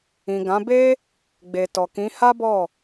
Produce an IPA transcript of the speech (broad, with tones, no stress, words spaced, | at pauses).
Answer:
ĩ˨ɡã˨˦ be˦ | ɡ͡be˨tɔ˨kĩ˨˦ ha˦bɔ˦˨